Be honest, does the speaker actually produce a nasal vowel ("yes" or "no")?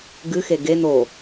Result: no